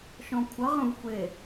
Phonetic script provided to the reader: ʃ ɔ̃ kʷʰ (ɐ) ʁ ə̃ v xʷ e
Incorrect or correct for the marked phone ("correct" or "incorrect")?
correct